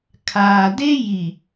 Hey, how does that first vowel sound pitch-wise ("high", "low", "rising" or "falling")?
low